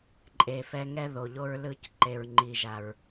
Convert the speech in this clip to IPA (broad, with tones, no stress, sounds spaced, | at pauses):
ǃʼ e˨ f ɛ˧ ŋ ɛ˦ ð o˨ ʎ o˦ ɹ l ɯ˦˨ c ǃ e˨ ɹ ŋ͡ǃ i˨ ʒ a˨ ɹ